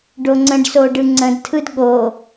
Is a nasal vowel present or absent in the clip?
present